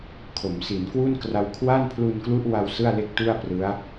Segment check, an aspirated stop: present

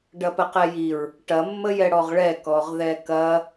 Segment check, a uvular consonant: present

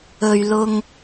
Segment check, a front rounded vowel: absent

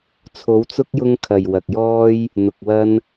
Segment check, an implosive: absent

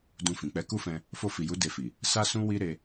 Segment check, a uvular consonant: absent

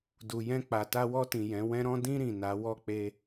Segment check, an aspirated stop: absent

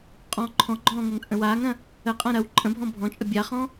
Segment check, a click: present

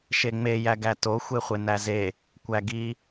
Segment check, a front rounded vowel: absent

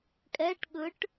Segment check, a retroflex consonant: present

